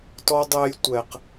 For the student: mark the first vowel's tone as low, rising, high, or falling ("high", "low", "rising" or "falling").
high